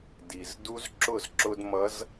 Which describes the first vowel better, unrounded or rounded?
unrounded